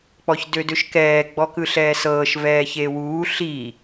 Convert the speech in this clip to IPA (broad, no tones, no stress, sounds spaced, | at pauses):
k͡p ɔ ç d ø d ø ʃ k ɛː ɡ͡b ɔ k ɯ ɬ ɛː s ɤː ʃ v ɛː ç e w uː ɬ i